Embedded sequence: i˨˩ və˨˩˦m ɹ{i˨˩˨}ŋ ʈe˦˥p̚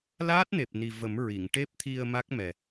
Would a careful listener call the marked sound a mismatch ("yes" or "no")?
no